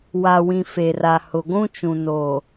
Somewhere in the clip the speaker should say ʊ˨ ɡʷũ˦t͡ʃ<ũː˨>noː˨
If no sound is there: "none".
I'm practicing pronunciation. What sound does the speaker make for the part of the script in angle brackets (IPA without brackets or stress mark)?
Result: ũ˨